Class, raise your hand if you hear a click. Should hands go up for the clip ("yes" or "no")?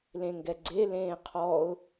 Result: yes